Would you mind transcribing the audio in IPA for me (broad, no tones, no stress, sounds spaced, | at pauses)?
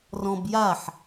r ɔ̃ b j a ħ